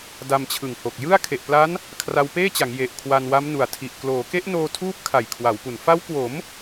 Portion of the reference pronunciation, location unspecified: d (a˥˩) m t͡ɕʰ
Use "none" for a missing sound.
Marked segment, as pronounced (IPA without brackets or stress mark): a˧